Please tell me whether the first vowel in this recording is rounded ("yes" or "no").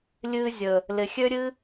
no